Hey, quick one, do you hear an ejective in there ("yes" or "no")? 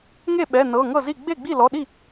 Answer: no